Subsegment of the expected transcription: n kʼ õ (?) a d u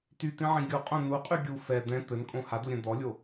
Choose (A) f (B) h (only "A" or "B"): B